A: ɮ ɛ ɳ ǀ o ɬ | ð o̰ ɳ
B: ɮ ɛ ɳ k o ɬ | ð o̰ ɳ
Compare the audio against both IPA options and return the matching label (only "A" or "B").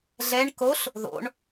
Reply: B